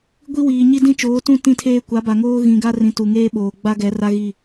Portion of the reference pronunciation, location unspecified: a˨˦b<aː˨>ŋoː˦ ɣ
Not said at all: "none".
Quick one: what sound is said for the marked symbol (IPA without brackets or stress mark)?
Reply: a˨